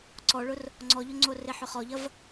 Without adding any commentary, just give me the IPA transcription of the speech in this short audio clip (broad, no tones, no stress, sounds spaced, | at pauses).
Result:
ǀ ɔ ɭ ʊ r | ŋ͡ǀ ɔ ʎ ʊ ŋ͡ǀ o r e ħ ʏ χ ɔ ʎ ɐ v